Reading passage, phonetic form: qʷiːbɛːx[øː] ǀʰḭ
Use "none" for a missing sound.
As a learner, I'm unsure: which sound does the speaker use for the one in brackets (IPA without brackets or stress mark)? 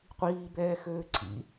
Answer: øː